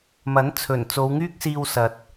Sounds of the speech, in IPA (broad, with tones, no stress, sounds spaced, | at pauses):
m ɐ˨˥ n t͡sʰ ɵ˨˩ n t͡s o˨˧ w ŋ yː˥ k̚ s iː˧ w s ɐ˨ t̚